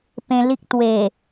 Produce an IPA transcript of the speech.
p ẽ˧ l i˦ k̚ t̪ w e˨˩

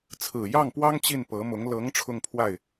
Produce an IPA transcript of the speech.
t͡sʰ ɹ̩˨˩ j ɑ˥˩ ŋ p w ɑ˥ ŋ t͡ɕ i˥˩ n p ɤ˧˥ m ʊ˧˥ ŋ l ɤ˧˥ ŋ ʈ͡ʂʰ ʊ˥˧ ŋ pʰ w a˥˩ ɪ̯

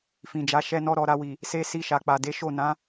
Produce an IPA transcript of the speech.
f ĩ˨ d͡ʒ a˨˦ ʃ ɛ˦ n ɔ˦ ɾ ɔ˧ ɾ a˧ w i˨ | s e˦ s i˧ ʃ a˨ k͡p a˨ d e˨˦ ʃ o˦˨ n ã˨˦

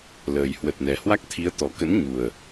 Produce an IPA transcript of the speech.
l əː˨˩ j h w ə˨˩ t̚ n ɛ˨˩ h w a˦˥ k̚ t̪ʰ i˨˦ ə̯ t̪ ɔ˨˩ k ə̰˧˥ n ɲ u˨˩ ə̯

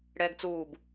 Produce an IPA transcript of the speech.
ɽ ɛː ɡ t͡s uː b

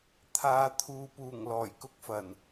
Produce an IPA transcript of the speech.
t̪ʰ aː˨˧ t̪ʰ uː˨ p uː˨˩ ŋ l ɔː˨˩ j k ʊ˥ k̚ f ɐ˨˩ n

